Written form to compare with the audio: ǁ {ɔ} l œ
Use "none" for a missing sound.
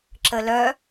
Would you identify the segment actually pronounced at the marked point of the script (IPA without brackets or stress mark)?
ə